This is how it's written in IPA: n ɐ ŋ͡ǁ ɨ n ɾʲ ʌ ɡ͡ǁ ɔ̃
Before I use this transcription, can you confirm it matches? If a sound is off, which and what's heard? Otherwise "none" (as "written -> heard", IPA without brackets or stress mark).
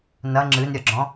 none